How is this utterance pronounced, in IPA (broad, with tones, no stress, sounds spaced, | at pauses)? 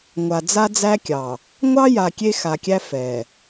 ŋʷ a˨ d͡z a˦ d͡z æ˦ kʲ ɑ˨ | ŋʷ ɑ˦ j a˨ kʲ e˦ x a˨ kʲ æ˦ f ɛ˨